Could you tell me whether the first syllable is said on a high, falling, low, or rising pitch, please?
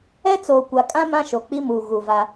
high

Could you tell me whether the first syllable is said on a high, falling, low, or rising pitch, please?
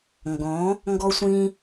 rising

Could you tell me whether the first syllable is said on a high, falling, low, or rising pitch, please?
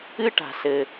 high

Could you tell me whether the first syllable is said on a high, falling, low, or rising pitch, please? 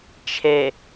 low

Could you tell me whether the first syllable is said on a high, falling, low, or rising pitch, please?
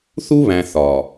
high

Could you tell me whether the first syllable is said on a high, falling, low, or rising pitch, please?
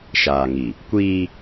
low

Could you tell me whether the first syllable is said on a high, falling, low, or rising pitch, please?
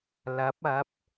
rising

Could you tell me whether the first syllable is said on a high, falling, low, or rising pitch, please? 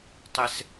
high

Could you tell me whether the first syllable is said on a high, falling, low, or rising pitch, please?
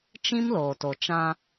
high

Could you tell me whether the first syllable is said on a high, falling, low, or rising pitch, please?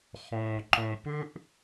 low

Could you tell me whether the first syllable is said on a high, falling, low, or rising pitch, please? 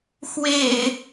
low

